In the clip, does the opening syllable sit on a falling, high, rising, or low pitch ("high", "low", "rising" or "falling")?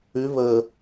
rising